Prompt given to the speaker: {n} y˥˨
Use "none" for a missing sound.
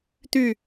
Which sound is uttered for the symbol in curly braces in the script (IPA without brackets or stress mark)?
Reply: t̪